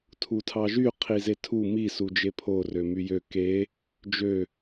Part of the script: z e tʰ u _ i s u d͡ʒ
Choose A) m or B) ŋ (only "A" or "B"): A